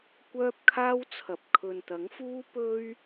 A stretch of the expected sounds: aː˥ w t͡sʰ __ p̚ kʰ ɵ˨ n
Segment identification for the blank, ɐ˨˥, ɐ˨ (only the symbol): ɐ˨